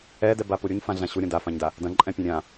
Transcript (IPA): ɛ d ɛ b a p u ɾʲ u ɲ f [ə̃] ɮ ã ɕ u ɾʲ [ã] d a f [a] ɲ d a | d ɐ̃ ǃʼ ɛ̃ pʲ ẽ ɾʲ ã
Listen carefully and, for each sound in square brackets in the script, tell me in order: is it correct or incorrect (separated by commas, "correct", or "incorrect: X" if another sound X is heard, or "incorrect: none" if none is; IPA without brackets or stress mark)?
incorrect: ã, incorrect: ɐ̃, incorrect: ã